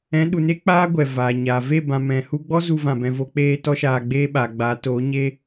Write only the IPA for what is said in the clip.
ɛ̃˨˦ ɗ u˨ n e˦ k͡p aː˦ ɡʷ ɛ˨ v aː˨ ɲ aː˨ v e˦˨ b ã˨ m ɛ̃˨ h u˧ ɡ͡b ɔ˦ z u˧ v ã˨ b ɛ̃˨ v o˧ k͡p eː˦ t ɔ˦ ʃ aː˧ ɡ͡b eː˦ ɓ aː˨ ɡ͡b aː˨˦ t oː˨˦ ɲ eː˦

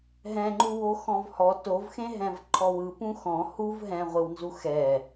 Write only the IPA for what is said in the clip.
ɦ ɛ̃ ŋ͡ǃ u w o x ɔ̃ v h ɔ t o v x ẽ ɦ ɛ̃ v ǃʰ ɔ w ɯ p ũ x ɔ̃ h u v ɦ ɛ̃ ʁʷ ɯ w n z u x ɛ

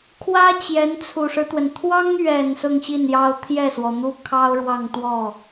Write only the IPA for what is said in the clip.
kʰ w ä˥ t͡ɕ j ɛ˧˥ n t͡sʰ u˨˩ ʂ ɻ̩˦ t̪ w ə˩ n t̪ʰ w ɑ˥ ŋ ɥ ɛ˨˩ n s ʊ˥˧ ŋ ɕ i˥˩ n j ɑ˥ ʊ̯ t̪ʰ j ɛ˥˩ s w ɔ˩ n̪ u˥ kʰ ɑ˥ ʊ̯ ɻ w ɑ˥˧ ŋ t̪ w ɔ˥˩

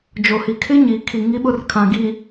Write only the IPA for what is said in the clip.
d͡ʒ o˨ h i˨ kʰ ɪ˦ ɲ i˨ kʰ i˨ ŋ i˦ ɓ ʊ˦ r kʰ ã˨ ɡ i˨

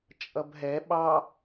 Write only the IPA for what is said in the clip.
t͡ʃʼ ʌ b ɦ ɛ ɓ ɑ

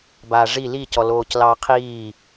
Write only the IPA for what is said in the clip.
b aː ʐ i l i c ɔ l oː c l ɑː qʰ iː

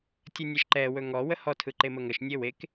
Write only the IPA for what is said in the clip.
tʲ ə nʲ ɛ ʃ ǃ ɛ w ɵ ŋ ɔ w ə h ɔ tʰ ɯ ǃ e m ə ŋ ə ʃ nʲ e w e k

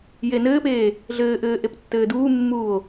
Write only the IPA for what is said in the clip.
j e n ɘː p eː | ɮ ɘː ʔ ɘː ʔ e p tː ɘː d uː mː uː o̯

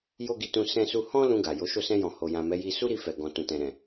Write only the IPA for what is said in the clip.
j o˦ ɡ i˧ t ũ˧ s ɛ̃˧ s u˧ h ɔ̃˦ l ũ˧ ɡ a˨ j o˨˦ ʃ o˦˨ s ɛ̃˧ j ɔ̃˨ h o˨ j ã˨ m ɛ˨˦ j i˧ s u˦ ɾ i˧ f ɛ˨ ɡ ɔ̃˨ t ũ˨ t ɛ̃˨ ɾ ɛ̃˨

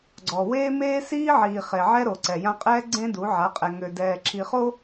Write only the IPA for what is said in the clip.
ɡ͡ǀ ɔ˨ w eː˦ m eː˦ s iː˦ ʕ iː˨ χ e˨ ʕ ɛ˦ ɾ o˨ ǀ ɛ˨ j ã˦ qʼ ɛː˦ ɡ͡ǀ ẽ˦ d u˨˦ ʕ a˨˦ qʼ ɛ˨ ŋ ø˨ d ɛː˨ ǁʰ i˨ χ o˦

